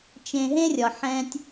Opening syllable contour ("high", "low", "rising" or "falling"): low